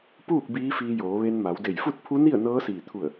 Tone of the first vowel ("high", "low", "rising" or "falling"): falling